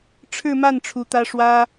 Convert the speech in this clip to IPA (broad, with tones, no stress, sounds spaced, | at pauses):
ʈ͡ʂʰ ɻ̩˥˧ m a˥˩ n ʈ͡ʂʰ u˧˥ t̪ ä˥ ʂ w ä˥